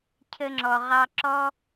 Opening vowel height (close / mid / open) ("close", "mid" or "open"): mid